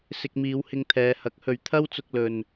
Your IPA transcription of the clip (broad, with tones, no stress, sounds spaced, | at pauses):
s ɪ˧ k̚ m iː˨˧ w h ɪ˧ ŋ t̪ʰ ɛː˨˧ h ɐ˨˥ k̚ h ɵ˨˧ ɥ t̪ʰ ɐ˥ w t͡s ʊ˧ k̚ l ɵ˧ n